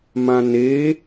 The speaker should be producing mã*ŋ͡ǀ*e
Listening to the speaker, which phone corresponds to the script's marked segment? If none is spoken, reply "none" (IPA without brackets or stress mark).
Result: n